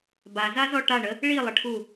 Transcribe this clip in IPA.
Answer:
bazazɔ ʈaɳə | ɭilˠəʈʰu

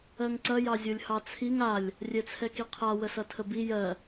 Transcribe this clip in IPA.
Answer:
ɜŋǀɐ jɑzʲolʲhɑt͡sʰiŋ alʲ | rʲɛt͡sʰɛkiqʰa wəsʌtʰəbi jɜ

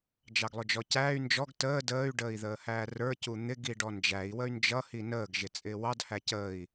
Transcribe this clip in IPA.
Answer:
d͡ʒɑɡlˠʊd͡ʒɔcæːy̯ nd͡ʒɔɡ təː dəːy̯ ɖəːi̯ðəːhæːrə˞ cun̪ɪɡi ɖɔnd͡ʒæi̯wəy̯ nd͡ʒʌhi nəːɡʒɪ t͡sʼɪːwɑd hæcəːi̯

